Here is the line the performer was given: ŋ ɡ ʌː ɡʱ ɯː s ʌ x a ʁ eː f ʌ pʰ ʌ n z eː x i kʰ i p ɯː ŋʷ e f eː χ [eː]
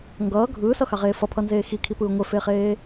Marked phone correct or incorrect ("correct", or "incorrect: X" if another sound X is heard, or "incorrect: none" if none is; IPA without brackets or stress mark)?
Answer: correct